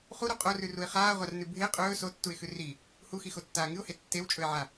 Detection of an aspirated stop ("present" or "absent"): absent